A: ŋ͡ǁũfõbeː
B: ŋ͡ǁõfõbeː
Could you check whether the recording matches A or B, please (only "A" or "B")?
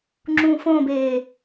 A